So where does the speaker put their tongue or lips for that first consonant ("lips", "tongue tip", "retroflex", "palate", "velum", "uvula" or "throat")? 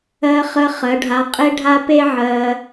uvula